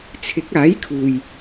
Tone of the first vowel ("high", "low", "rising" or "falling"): rising